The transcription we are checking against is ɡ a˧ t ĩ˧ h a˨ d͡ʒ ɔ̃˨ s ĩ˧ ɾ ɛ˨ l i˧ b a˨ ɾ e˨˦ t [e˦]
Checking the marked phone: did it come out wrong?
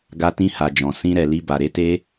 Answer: no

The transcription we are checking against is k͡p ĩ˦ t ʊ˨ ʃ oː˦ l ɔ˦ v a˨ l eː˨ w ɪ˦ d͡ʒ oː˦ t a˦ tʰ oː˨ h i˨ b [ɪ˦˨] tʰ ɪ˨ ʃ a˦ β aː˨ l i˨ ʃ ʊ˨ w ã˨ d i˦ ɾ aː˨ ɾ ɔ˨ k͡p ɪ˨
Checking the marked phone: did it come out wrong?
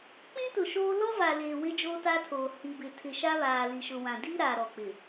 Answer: yes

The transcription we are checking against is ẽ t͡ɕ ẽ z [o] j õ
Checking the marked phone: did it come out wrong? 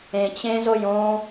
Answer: no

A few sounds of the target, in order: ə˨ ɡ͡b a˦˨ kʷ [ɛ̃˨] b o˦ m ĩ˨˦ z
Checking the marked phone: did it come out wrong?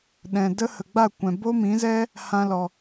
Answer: no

